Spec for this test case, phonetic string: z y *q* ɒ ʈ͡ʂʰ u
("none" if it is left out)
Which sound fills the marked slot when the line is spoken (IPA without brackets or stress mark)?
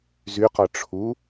q